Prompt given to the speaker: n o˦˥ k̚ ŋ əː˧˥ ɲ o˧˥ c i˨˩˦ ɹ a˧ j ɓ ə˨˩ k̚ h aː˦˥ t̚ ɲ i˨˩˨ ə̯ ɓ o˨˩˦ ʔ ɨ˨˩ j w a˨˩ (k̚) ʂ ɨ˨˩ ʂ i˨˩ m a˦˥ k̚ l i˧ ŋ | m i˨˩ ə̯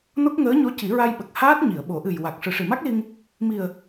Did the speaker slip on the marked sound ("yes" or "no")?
no